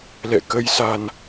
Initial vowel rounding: unrounded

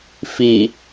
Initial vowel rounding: unrounded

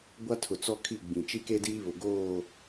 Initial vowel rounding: unrounded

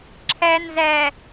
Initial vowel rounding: unrounded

